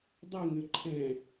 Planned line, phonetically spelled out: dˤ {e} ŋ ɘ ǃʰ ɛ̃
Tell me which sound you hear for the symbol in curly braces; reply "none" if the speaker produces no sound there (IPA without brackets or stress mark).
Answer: ɘ